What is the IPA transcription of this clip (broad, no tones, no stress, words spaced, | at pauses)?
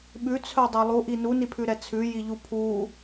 ɓʉt͡sʰœdˤɛ lˠuʔi nunipʰʉɾɛ t͡sʰʉjiʎu pʰu